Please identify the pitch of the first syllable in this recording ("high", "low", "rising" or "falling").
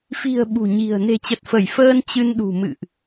low